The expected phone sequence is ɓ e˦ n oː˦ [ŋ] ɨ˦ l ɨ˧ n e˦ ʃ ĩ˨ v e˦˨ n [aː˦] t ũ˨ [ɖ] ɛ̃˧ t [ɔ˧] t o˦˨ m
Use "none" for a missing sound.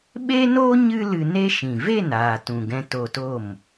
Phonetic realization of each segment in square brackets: ɲ, aː˨, ɡ, o˧

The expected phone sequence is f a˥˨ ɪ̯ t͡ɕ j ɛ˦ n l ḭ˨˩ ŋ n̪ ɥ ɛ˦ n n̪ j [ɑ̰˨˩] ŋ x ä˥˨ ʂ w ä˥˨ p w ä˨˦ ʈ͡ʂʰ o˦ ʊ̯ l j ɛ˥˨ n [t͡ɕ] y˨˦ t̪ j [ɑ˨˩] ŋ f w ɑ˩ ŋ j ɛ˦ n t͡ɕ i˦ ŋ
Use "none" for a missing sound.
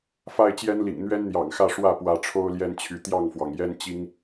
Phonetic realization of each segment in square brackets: ɑ̰˨˩, t͡ɕʰ, ɑ˥˨

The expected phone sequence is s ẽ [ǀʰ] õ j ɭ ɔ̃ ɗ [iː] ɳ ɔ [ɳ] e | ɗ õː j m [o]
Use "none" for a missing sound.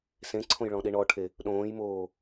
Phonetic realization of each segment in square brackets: ǀʰ, i, ʈʰ, oː

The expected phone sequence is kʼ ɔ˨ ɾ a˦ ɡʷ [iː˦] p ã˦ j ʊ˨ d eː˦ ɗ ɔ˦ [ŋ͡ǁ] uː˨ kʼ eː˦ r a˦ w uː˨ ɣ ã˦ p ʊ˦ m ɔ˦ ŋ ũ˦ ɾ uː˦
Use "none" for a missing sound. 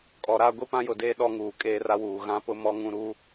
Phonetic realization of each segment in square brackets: i˦, ŋ

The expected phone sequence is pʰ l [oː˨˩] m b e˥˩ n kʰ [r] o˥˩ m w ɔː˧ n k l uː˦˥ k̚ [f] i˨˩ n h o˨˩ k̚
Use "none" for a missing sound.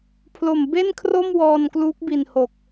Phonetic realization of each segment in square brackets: o˨˩, r, b

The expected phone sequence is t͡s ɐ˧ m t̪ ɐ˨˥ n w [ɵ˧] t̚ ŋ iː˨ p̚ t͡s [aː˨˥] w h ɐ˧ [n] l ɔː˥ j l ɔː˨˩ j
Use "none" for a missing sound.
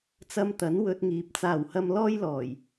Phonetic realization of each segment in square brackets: ɵ˧, aː˨˩, m

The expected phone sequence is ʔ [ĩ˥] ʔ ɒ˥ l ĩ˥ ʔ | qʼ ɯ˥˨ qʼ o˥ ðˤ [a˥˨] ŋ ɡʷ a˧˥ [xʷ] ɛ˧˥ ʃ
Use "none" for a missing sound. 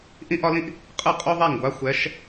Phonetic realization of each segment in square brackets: ĩ˥, a˥˨, xʷ

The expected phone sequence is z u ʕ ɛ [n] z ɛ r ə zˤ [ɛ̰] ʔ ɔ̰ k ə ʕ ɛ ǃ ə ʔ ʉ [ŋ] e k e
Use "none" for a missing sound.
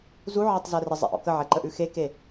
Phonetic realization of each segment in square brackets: tˤ, ɛ̰, x

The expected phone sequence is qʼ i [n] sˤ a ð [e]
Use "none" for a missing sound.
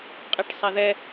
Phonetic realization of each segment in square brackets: ʈ, ɛ

